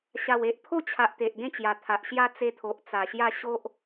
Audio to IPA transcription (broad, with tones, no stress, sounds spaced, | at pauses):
ɕ a˨˩ w e˨ ʔ pʰ o˥˧ t͡ɕʰ a˨ ʔ t̪ e˨ ʔ ɡ ẽ˥˧ t͡ɕ j a˨˩ t̪ʰ a˨ ʔ ɕ j a˧ t͡s e˧ t̪ʰ o˨ ʔ t͡s a˨˩ ɕ j a˥˧ ɕ o˦ ʔ